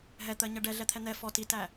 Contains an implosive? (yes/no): no